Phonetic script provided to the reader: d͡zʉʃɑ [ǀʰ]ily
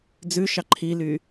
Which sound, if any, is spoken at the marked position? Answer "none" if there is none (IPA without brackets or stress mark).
ǃʰ